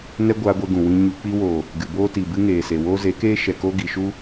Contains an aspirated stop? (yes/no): no